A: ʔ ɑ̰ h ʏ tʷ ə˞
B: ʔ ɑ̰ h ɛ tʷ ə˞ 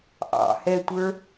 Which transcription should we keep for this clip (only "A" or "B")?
B